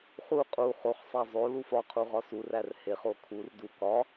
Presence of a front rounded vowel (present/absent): absent